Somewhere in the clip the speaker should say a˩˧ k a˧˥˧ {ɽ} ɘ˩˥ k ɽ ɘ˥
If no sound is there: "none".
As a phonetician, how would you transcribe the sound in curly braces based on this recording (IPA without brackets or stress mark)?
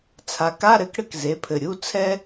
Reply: ɾ